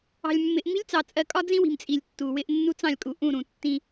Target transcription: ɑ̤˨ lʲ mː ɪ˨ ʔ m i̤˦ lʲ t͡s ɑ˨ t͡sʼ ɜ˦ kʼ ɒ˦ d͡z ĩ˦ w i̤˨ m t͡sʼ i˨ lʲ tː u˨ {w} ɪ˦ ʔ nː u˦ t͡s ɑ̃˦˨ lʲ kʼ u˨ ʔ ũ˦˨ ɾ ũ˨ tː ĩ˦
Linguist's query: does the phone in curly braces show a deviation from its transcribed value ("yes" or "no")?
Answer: no